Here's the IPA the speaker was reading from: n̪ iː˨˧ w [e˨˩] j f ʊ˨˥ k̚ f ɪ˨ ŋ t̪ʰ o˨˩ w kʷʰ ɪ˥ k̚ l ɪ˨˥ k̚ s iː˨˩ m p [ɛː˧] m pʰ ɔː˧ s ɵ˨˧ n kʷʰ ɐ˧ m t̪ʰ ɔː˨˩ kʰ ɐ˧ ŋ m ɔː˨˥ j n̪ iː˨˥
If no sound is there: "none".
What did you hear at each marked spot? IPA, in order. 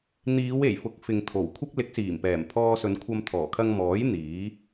e˨˩, ɛː˨˩

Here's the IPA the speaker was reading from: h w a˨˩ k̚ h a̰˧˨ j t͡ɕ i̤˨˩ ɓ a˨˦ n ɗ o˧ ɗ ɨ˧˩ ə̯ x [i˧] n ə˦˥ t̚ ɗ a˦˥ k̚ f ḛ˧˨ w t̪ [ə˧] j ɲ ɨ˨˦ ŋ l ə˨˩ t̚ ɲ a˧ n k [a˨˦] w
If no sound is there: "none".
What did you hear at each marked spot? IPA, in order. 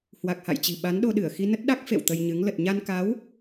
i˧, ə˧, a˨˦

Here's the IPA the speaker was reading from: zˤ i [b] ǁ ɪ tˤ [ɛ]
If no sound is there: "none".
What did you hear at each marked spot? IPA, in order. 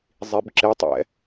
b, ɛ̰

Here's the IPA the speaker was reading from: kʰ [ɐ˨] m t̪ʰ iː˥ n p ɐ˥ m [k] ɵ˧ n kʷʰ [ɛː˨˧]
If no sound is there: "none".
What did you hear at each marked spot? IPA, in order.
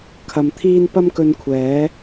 ɐ˨, k, ɛː˨˥

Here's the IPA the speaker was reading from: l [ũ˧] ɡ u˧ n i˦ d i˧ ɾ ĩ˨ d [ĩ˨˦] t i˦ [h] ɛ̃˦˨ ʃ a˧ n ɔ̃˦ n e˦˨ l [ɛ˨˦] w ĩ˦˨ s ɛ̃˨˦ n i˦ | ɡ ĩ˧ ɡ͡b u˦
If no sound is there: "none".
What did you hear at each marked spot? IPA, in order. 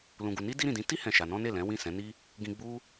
ũ˧, ĩ˨˦, h, ɛ̃˨˦

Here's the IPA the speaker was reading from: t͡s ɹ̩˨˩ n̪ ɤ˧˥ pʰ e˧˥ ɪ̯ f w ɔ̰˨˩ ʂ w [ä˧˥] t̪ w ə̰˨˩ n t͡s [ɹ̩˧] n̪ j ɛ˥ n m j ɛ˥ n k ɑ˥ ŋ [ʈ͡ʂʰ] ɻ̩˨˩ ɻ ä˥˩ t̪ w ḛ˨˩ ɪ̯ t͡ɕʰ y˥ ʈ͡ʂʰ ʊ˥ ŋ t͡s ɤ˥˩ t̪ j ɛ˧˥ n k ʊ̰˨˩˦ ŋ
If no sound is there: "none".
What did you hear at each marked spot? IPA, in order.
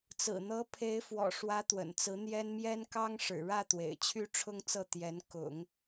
ä˧˥, ɹ̩˧˥, ʂ

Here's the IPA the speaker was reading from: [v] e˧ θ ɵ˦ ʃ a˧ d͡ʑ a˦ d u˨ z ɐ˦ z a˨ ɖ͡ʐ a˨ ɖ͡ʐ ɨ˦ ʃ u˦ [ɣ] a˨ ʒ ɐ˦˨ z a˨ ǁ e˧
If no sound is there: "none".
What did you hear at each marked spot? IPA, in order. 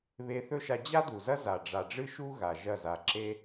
β, ɣ

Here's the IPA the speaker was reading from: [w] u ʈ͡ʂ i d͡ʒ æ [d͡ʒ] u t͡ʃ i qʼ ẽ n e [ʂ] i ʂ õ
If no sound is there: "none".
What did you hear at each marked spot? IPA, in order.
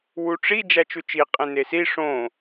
w, t͡ʃ, s

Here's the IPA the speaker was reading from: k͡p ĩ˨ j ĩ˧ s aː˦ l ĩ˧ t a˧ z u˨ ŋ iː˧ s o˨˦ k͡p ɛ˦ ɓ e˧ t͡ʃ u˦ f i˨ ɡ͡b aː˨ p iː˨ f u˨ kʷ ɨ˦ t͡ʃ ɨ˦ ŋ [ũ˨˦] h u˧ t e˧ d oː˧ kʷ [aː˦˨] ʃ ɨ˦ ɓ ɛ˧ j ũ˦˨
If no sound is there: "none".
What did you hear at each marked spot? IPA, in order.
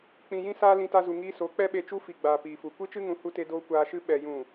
ũ˨˦, aː˧

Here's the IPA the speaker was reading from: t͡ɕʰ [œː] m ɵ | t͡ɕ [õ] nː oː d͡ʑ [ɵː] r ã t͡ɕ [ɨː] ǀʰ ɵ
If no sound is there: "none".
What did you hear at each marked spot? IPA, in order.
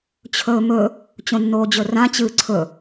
ɵː, õ, ɵ, ɨː

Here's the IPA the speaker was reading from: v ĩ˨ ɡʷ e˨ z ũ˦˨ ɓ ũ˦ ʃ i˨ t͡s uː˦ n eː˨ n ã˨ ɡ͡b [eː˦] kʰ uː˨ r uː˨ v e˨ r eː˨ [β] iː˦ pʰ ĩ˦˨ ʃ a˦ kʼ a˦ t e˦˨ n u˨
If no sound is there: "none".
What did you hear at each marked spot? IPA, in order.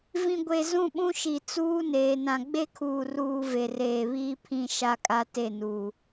e˦, β

